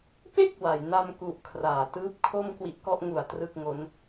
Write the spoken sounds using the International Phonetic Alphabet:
p e˥˩ k̚ w a˩˦ j n a˧ m k u˨˩ ʔ kʰ r aː˩˦ t ɯː˦˥ p̚ kʰ o˥˩ m k w i˦˥ ʔ k ɔ˦˥ ʔ ŋ u˨˩ a̯ t r ɯ˥˩ k̚ ŋ o˦˥ n

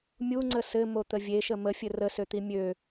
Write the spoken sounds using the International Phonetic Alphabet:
mʲ u ŋ͡ǀ ə s ɘ m o t̪ ə vʲ e ʃ ə m ə fʲ ɘ r ə s ø t̪ i mʲ ø

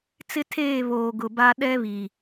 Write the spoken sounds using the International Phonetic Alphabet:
t͡s ɪ˦ tʰ eː˦˨ β oː˨ ɡ ʊ˨ b a˦ ɗ ɛ˦ β i˨

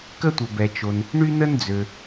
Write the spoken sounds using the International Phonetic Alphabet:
k ə˥ tʷ ə˩ b ɛ˩ t͡ʃ o˩ n | ɳ y˥ n ə˥ n d͡z ø˩

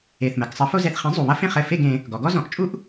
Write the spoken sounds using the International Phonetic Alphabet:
e˨˩ θ m ɘ˩˧ ɡ sˤ ɐ˨˥ f o˥ z ɛ˨˩ θ χ ẽ˨˥ zˤ u˨˩ β ɐ˥ f ẽ˥˨ χ ɘ˨˩ f e˥˨ ɡ ẽ˩˧ | ɡ ɔ˩˧ ɡ ɔ˥ z ɔ̃˨˩ ʔ t͡ʃʼ u˥ ʔ

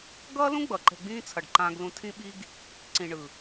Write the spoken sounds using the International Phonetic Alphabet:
ɡ ʌː˦ l ũ˦ ɡ͡b ʌ˨ ǃ ɛ̤˧ ɡ͡b ĩː˦ t͡sʰ ʌ˨ ɖ ǃ ãː˧ ɡ l ũ˧ tʰ ĩ˧ ɓ i˧ ɡ | ǀ ĩ˨ ɳ ɯ˨

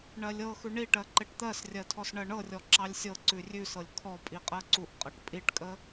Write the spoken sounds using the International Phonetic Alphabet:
ɳ ɜ lʲ ɤ x ʉ ɳ i ʈ ɜ ǃ e ʈ t̪ ɜ s rʲ ɜ tʰ ɔ s ɳ ɜ ɳ ɤ rʲ ɔ ǁ ɑ lʲ sʲ ɤ ǀ ʉ rʲ ʉ s ɤ lʲ kʰ ɔ pʼ i qʼ ɜ ǀ u ʔ qʼ ɤ ʈ pʼ i ʈ kʼ ə

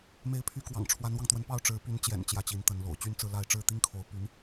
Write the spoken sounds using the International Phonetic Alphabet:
m e˧˥ ɪ̯ pʰ y˧˥ k w ɑ̰˨˩ ŋ ʈ͡ʂʰ w a˧˥ n w ɑ˧ ŋ t̪ w ə˧˥ n p ɑ˥˩ ʊ̯ ʈ͡ʂ ɻ̩˧˥ p y˧˥ n t͡ɕ j ɛ̰˨˩ n t͡ɕ j ä˥˩ t͡ɕ i˧˥ n t̪ ə˧˥ n l o̰˨˩ ʊ̯ t͡ɕ y˥˧ n t͡s ɹ̩˥˧ l a˥˧ ɪ̯ ʈ͡ʂ ɻ̩˥˩ t̪ i˥ ŋ kʰ o˧˥ ʊ̯ p y˧˥ n

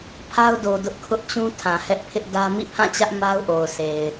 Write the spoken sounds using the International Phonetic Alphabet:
pʰ a˦ ʊ̯ d o˨ d ʊ˦ ʔ kʰ ʊ˦ ʔ t͡ɕ ũ˦ tʰ ã˨ h ɛ˦ ʔ pʰ ɪ˦ ʔ d ä˦ m ḭ˦˨ pʰ ã˦˨ t͡ɕ ä˦ ʔ m a˦ ʊ̯ ʔ o˨ ʊ̯ s e˨ ɪ̯

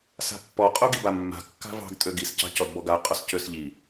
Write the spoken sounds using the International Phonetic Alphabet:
s a̤ pː ɔ qʼ o ɡ i b a mː a̤ kː a̤ v ɑ̤ ɡ tʼ ø ɡ i s c ɑ̤ c ɔ d b ɔ ɡ a qʼ ɔ s c ø s ʎ i

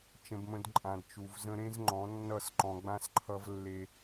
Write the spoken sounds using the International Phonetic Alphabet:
t͡ʃ ə̃˧ b m ə̃˧ d ǃʼ ã˨ d t͡ʃ u˨ v z ə̃˧ ɾ ẽ˦ z ŋ͡ǃ ɔ̃˨˦ nː ʌ˦˨ s ǃ ɔ̃˧ ɡ͡b ã˦ s ǃʰ ʌ˦ v lː e˦

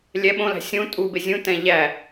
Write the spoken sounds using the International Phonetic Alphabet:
lʲ ɛ ɓ õ l æ̤ sʲ ũ tʼ u b e zʲ ũ t ɛ̃ ʎ æ

